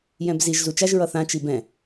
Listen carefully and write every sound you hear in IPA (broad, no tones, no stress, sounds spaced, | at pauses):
j ɛ̃ b z i ʒ z u t͡ʃ a ʒ ɹ ʌ θ ã t͡ʃ i b ɛ̃